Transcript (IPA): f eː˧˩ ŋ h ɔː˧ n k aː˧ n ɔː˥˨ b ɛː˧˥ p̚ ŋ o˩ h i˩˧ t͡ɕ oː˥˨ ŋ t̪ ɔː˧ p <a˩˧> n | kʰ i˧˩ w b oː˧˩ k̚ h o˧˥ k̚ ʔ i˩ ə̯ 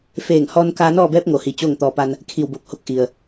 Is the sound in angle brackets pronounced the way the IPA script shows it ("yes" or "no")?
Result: no